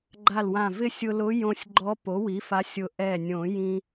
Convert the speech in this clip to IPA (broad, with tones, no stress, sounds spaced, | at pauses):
ɡ͡ǃ a˧˩ l w ã˧˩ v ɪ˥˧ sʲ ʊ˧ l ʊ˧˥ j õ˧ sʲ ɡ͡ǃ ɔ˧˥ p o˩˥ w i˩˥ f a˧˥ sʲ ʊ˧˩ ʔ ɛ˧˩ nʲ õ˨˩˦ j ĩ˧